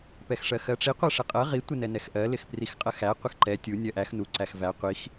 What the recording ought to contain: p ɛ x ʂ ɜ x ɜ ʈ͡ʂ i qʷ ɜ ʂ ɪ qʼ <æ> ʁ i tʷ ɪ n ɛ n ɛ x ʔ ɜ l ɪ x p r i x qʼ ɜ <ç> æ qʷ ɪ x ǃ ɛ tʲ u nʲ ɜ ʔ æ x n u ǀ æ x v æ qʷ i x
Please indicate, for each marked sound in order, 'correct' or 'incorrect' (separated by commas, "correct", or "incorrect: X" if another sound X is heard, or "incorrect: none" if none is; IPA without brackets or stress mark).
incorrect: ɜ, incorrect: x